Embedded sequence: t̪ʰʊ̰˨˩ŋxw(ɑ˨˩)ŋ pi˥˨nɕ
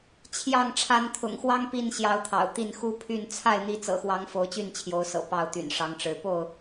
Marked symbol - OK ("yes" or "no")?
no